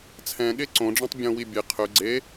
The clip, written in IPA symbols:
t͡sʰɛ̃ɠe ǀõɖ͡ʐãtˤ bʲõwi bʲe qʰø ɡ͡ǀe

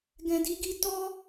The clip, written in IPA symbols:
ɡɛ̃˨di˨˦ɡi˧ tɔ˦

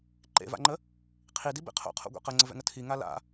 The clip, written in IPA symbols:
ǃḛva̰ŋ͡ǃə | qʰidibḛ qʰo̰qʰo̰ɡʷɛ̰ qəŋ͡ǀəvɛ̰ŋə tʰiŋa la̰

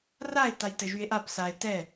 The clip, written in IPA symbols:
rae̯ tajtɘʒye̯ʔap sae̯ tɛ

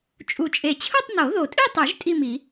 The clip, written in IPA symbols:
t͡ʃʼu˨˩t͡ʃʼe˨˩t͡ɕʰɯ˥˧tˤ no˨˩˦ðo˨˩tʼi˥˧tˤi˨˩˦ʒ tʼi˥˧mi˨˩˦

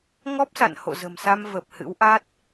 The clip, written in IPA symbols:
ŋɔ˦˥p̚sa̰˧˨n ho̰˧˨zə̤˨˩msa˧m və˨˩p̚ hɨ̰˧˥wʔa˦˥t̚

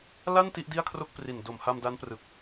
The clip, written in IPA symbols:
la˥˩n ti˥˩ʔdi˥˩a̯kʰro˥˩k̚ pri˨˩ndo˨˩mha˧m da˦˥nprɯ˨˩k̚

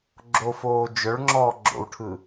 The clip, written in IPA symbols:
ɡ͡ǁofoː d͡ʒœɭŋ͡ǁɔː ɡ͡ǁo̰wʈʰɯ

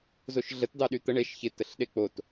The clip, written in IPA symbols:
zoʃɮət dɑɗyt̪ə ɳeʃ çɪtəɬɗe k͡pot

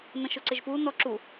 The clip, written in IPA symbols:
nə̃ʃʊǀɪʒpu nɔǁu

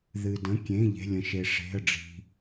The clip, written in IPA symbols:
ðɨ˩də̃˩˧˩kʲẽ˩˧˩ ʎe̤˩˧˩lʲə̃˩ʃe˩ ʂe̤˩˧˩ə̯ɖ͡ʐi̤˩

